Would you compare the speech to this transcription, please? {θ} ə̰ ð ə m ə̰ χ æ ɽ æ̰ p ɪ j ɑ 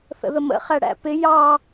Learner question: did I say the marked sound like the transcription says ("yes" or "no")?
yes